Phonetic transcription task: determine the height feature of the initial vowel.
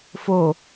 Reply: mid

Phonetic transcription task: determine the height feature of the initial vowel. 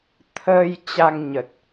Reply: mid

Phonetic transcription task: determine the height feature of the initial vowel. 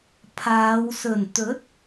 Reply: low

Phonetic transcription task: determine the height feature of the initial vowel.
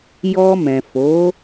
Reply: mid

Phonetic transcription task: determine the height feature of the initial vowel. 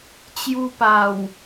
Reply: high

